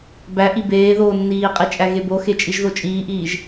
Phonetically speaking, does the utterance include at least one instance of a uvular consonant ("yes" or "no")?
yes